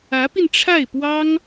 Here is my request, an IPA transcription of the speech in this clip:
ä˧˥ p i˧ n ʈ͡ʂʰ a˥˩ ɪ̯ p w ɑ˥ ŋ

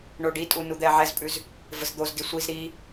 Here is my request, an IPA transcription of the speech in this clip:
ɳ o ɖ i tʼ u n u d̪ ɛ ʕ ɛ z pʼ ʉ z | v ə z d̪ o z d i sʷ i z ɾ i

